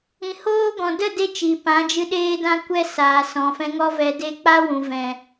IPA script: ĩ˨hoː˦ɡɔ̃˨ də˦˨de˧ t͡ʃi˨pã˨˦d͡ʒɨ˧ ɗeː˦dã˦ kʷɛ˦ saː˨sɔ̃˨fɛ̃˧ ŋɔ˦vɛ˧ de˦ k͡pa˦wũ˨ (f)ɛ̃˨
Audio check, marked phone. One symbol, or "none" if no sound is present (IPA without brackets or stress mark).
v